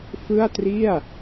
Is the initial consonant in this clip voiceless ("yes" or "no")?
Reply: yes